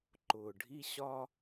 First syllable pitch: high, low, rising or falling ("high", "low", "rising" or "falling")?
low